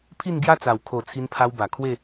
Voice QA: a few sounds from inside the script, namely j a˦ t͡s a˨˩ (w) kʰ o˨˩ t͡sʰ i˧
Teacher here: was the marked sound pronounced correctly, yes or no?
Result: yes